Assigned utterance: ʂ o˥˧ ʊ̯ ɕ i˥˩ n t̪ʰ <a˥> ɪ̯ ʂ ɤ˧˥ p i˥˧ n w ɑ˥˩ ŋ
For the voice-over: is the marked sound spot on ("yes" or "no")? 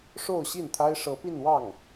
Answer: yes